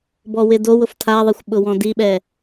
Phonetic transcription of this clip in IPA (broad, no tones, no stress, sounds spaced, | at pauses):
b ɔ w ɪ d o w ʊ f tʰ a ðˤ ɛ xʷ ɓ ʊ w ɔ̃ d i ɓ ɛ